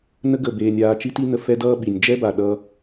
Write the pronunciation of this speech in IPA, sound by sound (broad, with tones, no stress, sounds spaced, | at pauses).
n ə˦ ɡ ə˦˨ b eː˧ nʲ aː˧ t͡ʃ i˦ t i˦ n ə˧ f ɛ˦ d ʌː˦ ɓ i˨ nʲ d͡ʒ ɛ˦ b a˨ ɗ ʌː˧